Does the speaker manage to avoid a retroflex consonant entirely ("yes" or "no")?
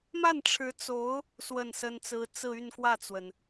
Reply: no